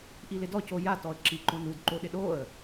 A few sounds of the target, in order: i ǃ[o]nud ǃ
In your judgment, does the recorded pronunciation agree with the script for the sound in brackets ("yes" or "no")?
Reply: no